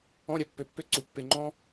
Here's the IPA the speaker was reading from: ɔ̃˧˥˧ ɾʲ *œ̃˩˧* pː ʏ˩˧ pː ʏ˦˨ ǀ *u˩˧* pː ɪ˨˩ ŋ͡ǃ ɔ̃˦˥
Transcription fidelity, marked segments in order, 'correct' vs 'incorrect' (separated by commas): incorrect, correct